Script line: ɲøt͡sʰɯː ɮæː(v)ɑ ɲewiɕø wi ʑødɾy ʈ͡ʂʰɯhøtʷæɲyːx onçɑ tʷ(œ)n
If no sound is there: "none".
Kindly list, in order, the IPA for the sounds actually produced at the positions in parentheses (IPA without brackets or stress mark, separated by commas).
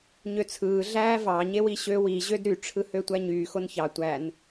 v, æ